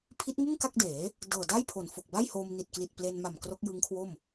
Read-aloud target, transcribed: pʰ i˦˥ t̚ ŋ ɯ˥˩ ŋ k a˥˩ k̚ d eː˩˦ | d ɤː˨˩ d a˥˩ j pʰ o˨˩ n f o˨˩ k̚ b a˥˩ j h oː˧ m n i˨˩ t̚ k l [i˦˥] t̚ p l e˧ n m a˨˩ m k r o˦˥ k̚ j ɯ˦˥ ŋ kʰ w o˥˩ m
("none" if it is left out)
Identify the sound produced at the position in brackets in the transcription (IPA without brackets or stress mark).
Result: i˨˩